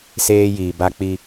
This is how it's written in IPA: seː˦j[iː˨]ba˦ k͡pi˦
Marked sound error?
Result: no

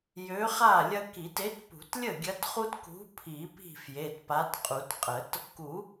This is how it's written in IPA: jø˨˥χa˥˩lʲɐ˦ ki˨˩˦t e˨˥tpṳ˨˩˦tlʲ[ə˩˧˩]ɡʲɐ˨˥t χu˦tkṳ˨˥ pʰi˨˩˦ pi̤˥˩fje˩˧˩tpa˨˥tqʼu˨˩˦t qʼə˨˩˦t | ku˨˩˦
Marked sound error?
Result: yes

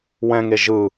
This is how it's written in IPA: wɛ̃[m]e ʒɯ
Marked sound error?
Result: yes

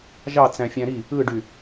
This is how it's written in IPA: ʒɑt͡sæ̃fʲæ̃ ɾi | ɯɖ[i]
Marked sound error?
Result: yes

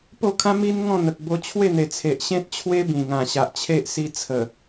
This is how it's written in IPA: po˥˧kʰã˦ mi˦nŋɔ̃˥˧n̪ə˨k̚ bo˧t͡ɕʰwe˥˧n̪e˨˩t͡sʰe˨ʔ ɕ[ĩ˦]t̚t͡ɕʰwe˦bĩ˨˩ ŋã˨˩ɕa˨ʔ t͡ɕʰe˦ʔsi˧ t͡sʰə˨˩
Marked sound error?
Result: yes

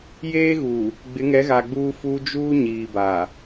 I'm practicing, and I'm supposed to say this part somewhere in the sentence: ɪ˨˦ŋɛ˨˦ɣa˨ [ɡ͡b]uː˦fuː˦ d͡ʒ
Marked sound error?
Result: no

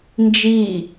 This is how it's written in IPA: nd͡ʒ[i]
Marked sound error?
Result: no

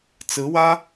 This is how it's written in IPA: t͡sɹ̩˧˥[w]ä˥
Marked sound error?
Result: no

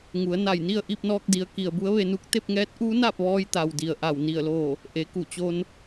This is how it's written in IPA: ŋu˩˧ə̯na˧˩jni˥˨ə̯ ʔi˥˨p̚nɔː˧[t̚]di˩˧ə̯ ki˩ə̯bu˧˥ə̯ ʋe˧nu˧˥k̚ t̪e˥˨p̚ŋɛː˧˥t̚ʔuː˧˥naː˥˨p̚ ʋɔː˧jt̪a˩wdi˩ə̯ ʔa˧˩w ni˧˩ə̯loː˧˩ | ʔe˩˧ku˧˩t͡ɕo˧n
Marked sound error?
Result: yes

